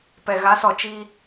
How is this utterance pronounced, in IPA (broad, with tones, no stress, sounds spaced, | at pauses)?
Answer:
p ɛ˨ ɣ a˨˦ s ɔ˨ t͡ʃ i˦